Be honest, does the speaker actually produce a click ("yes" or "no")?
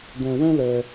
no